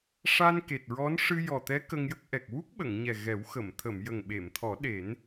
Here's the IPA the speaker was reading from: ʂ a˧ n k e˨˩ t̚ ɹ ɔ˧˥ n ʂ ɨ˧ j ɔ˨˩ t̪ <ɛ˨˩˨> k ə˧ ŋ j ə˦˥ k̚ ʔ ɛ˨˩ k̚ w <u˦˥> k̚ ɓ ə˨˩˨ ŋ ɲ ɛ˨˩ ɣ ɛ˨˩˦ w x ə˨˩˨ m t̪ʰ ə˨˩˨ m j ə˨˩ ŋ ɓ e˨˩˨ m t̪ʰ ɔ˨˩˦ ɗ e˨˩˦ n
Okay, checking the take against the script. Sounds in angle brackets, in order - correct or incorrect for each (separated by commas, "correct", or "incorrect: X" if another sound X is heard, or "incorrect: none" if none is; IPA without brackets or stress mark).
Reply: incorrect: ɛ˧˥, correct